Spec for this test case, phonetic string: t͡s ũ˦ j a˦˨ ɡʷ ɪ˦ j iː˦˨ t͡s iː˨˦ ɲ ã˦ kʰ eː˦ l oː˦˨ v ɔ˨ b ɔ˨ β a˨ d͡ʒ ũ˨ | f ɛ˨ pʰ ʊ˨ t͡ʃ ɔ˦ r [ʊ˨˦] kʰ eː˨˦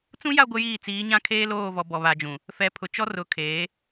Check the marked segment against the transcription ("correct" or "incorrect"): correct